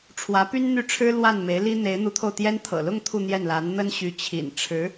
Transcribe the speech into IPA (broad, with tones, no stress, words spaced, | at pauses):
ʈ͡ʂʰwä˧˥py˥nn̪y˥˩ʈ͡ʂʰɻ̩˥ lwa˥˩n me˧˥ɪ̯li˥ n̪e˧˥ɪ̯n̪u˧˥t̪ʰo˧ʊ̯t̪jɛ˥n t̪ʰɤ̰˨˩lʊ˥˧ŋ t̪ʰu˥˧n̪jɛ˥˩nla˧˥n n̪ə˥nɕy˧˥t͡ɕʰḭ˨˩n ʈ͡ʂʰɻ̩˧˥